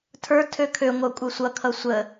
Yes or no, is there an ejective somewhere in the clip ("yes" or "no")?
yes